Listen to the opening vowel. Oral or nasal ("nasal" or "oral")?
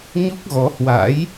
oral